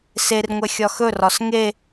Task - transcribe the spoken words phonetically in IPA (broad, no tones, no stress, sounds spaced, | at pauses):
s e r ŋʷ ɛ xʲ ɒ x ɵ r ɒ s ŋ e